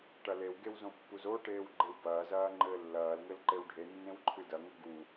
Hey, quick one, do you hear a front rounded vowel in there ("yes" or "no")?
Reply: no